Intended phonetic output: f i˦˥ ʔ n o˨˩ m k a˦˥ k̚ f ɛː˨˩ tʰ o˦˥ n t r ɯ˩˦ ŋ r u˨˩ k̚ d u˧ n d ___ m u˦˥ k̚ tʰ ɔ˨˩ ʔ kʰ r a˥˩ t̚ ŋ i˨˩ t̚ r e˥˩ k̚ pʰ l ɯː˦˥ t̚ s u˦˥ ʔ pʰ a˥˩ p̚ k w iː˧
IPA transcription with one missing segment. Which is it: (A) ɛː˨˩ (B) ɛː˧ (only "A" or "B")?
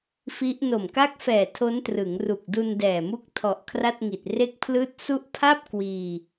A